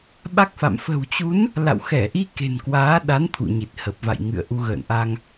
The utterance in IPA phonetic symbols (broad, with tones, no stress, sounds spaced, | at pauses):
ɓ a˦˥ k̚ f a̰˧˨ m f ə̤˨˩ w t͡ɕ u˨˦ n | l a̰˧˨ w x ɛ˧˩ ʔ i˧ k e̤˨˩ n k w aː˨˦ ɗ a˨˦ n t̪ʰ ṵ˧˨ ɲ i˨˩ t̚ h ə˨˩ p̚ v a̰˧˨ j ŋ ɨ̰˧˨ ə̯ ʔ u˧ ɣ ə̰ː˧˨ n ʔ a˧ ŋ